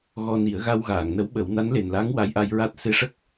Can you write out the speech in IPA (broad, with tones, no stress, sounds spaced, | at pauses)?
ɣ ɔ˧ n i˨˩˦ ə̯ ɣ a˧ w ɣ aː˨˩˨ ŋ n ə˧˥ w ɓ ə˨˩˦ w n a˧˥ n l e˨˩ n l a˧˥ ŋ w a˧˥ j ʔ a˧ j ɹ a˦˥ t̚ s e˧ ʂ ə˦˥ k̚